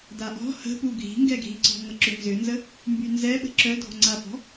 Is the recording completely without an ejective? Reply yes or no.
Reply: yes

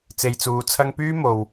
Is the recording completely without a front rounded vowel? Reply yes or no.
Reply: no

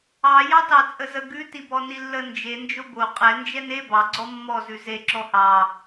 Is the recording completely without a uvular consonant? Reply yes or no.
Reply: no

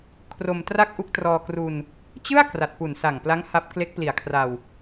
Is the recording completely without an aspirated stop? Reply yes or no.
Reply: no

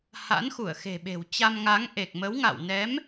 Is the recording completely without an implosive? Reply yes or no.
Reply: no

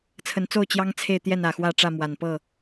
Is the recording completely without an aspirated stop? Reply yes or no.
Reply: no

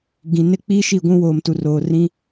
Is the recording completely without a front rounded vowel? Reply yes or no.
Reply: yes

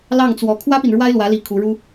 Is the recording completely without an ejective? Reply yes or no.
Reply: yes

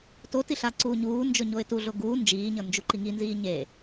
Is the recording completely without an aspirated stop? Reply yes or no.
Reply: yes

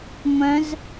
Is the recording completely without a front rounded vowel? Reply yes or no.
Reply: no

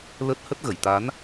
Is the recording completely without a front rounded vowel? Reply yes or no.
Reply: yes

